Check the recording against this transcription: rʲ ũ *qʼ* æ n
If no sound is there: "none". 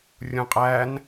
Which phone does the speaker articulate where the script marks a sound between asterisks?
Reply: qʼ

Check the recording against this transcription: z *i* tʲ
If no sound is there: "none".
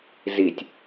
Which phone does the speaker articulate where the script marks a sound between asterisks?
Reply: i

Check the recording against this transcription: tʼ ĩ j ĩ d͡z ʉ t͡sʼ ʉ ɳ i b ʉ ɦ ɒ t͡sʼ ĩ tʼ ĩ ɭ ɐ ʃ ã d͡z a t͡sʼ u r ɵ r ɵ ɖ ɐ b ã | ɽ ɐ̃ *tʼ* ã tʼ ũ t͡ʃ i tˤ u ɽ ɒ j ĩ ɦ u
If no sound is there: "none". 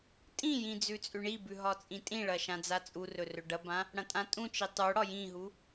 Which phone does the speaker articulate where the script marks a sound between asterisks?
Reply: tʼ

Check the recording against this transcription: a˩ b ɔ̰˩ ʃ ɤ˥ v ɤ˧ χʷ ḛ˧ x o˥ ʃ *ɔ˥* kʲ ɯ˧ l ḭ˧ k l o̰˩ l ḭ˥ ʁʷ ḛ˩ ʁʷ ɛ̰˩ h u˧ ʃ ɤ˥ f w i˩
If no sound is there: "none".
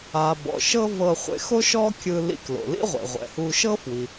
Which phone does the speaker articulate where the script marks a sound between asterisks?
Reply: ɔ˥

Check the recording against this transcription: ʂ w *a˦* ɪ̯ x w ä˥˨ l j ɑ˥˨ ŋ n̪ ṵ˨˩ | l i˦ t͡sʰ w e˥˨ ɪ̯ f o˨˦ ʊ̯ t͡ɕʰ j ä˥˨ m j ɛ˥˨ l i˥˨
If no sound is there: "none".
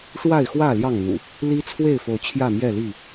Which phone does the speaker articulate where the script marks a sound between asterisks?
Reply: a˥˨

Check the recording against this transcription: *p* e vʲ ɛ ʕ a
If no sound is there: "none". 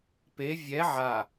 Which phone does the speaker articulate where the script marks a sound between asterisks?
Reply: p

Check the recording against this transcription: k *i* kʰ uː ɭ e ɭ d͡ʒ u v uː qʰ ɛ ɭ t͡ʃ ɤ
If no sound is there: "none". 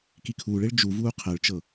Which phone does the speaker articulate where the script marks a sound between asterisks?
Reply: i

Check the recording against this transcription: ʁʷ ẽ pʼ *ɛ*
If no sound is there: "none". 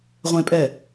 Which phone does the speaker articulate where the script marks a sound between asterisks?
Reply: ɛ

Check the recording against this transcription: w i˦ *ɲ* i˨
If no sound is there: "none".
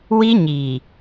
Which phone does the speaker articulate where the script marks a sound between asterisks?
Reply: ɲ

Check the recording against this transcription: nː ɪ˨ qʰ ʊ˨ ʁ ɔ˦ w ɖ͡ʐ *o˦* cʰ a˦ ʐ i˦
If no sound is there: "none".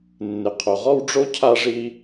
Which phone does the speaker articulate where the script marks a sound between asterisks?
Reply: o˦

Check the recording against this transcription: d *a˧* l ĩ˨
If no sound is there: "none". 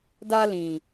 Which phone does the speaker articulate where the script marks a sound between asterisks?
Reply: a˧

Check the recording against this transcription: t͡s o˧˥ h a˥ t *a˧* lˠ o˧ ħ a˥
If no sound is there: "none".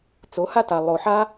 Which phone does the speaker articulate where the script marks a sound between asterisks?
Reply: a˧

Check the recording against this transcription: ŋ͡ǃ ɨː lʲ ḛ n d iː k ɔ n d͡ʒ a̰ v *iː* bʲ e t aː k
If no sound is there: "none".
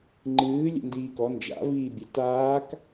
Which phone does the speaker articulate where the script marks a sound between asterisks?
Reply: iː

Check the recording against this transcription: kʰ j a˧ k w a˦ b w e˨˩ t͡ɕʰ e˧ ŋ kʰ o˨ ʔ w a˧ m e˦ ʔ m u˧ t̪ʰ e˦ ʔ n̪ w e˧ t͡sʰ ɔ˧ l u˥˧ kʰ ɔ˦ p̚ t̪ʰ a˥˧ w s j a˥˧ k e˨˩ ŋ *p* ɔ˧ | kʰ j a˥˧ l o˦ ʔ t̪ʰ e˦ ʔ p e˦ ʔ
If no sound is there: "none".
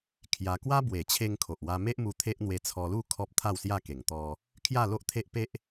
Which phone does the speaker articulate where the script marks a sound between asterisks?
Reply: t̪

